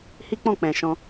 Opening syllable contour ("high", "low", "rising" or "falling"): high